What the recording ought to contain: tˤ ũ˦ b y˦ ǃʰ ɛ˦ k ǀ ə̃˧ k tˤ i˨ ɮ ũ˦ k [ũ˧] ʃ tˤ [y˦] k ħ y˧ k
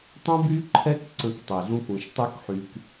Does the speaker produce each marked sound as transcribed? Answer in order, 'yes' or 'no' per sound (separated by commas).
yes, no